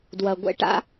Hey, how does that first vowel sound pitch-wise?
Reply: low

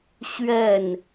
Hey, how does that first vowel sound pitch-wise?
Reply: falling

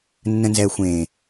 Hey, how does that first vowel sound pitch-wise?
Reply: low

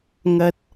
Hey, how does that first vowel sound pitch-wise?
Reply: high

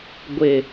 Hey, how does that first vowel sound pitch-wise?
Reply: low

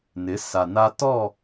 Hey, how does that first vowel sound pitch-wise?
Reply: rising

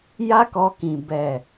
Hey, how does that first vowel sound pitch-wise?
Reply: high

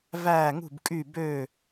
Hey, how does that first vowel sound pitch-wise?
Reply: falling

